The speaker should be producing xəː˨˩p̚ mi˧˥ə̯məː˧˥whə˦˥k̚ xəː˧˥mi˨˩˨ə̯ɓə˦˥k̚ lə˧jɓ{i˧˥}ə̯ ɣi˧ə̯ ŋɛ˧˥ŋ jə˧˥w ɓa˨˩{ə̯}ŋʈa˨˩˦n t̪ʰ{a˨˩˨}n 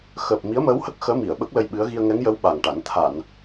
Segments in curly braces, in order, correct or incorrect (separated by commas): incorrect, incorrect, correct